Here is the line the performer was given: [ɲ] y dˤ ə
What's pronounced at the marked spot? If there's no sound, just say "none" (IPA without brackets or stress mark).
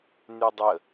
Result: n